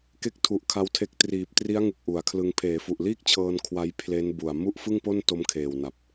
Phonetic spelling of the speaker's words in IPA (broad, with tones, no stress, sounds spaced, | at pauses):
k e˦˥ k̚ tʰ u˨˩ ʔ kʰ a˦˥ w tʰ e˦˥ k̚ t r iː˨˩ p̚ t r i˦˥ a̯ ŋ ɯ˨˩ k̚ ʔ u˩˦ a̯ kʰ l ɯ˧ ŋ pʰ eː˩˦ f u˨˩ ʔ l iː˥˩ k̚ t͡ɕʰ ɤː˧ n kʰ w a˦˥ j pʰ l e˦˥ n b u˨˩ a̯ m u˥˩ ʔ f ɯ˥˩ ŋ p o˥˩ n t o˦˥ m kʰ eː˨˩ w n a˨˩ p̚